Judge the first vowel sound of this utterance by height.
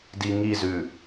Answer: high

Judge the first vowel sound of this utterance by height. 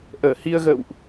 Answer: mid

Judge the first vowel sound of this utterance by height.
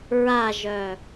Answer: low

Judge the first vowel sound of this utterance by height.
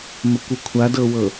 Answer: mid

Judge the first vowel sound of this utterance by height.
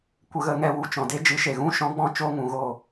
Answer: mid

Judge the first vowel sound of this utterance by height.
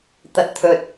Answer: low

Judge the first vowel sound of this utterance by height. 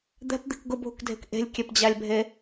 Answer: mid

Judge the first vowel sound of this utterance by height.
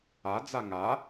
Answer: low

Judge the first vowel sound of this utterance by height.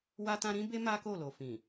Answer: low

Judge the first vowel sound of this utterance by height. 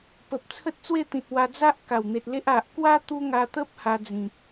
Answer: mid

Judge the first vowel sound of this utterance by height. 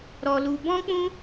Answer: mid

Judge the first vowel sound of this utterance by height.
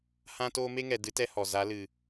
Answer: low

